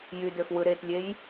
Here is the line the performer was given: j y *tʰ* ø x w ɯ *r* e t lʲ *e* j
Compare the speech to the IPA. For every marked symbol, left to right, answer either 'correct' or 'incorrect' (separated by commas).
incorrect, incorrect, correct